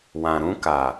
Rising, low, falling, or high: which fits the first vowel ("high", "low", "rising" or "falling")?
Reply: low